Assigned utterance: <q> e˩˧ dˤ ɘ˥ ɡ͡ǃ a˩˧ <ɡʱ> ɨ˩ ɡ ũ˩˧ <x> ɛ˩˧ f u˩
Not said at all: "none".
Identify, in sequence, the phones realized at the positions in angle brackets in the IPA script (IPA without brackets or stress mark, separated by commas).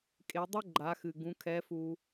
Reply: kʼ, x, kʰ